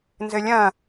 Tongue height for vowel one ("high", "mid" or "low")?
mid